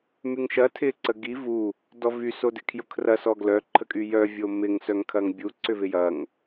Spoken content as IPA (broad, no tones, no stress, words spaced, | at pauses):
myŋʃɐ tʰɪ ǀəɡi vu | dɔvy sodɪkʰjʊkʰrɐ sɔɡlœ ǃʰəkʼyjœ vʲomɪŋ sœŋkʰɐŋbʲu ǀʏvɪjɐŋ